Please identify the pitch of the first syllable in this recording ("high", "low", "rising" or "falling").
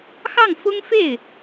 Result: falling